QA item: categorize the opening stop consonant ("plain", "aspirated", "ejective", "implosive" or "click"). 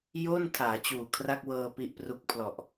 aspirated